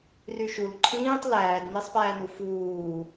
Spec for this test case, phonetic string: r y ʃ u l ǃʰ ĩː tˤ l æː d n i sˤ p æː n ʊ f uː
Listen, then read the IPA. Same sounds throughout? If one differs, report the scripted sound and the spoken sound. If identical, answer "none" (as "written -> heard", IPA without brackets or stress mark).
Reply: ʊ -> u